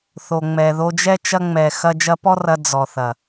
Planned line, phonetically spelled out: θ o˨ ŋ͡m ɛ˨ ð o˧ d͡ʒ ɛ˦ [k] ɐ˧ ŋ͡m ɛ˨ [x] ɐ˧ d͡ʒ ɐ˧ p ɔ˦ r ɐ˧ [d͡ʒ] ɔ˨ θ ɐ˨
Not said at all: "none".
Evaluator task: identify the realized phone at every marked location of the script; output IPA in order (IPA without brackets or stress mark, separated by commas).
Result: t͡ʃ, x, d͡z